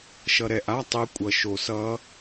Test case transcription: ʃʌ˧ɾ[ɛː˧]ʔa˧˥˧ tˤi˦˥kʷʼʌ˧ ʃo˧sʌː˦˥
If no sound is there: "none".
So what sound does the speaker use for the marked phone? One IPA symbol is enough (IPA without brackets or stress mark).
ɛ˧